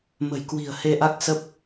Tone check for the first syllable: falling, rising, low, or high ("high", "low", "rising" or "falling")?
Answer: low